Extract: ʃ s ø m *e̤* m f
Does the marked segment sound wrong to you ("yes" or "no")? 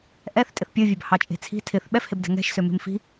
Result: no